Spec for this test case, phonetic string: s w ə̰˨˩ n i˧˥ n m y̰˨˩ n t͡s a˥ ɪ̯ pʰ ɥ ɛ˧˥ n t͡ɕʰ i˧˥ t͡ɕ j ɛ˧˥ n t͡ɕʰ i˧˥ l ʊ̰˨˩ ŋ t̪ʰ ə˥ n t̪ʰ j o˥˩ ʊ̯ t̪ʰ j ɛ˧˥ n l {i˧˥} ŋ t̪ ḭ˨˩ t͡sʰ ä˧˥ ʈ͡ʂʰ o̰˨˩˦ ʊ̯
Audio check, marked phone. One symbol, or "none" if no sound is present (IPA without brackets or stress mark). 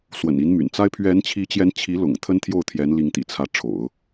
i˧˥